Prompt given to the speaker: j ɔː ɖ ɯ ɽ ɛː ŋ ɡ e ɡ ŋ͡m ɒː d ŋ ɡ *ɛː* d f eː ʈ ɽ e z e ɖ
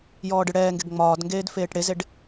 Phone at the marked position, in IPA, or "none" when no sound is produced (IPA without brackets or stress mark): eː